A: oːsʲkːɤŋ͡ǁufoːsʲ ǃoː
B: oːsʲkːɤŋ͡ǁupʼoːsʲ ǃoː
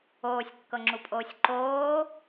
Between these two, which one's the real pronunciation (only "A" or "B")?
B